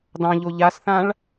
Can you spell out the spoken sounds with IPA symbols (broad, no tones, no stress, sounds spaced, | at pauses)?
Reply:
d ɑ̃ ʎ o ʎ a s θ ã ɭ